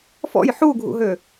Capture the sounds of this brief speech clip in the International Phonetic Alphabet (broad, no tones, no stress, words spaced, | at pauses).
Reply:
fɔ̰j ħuɡʱṵɦø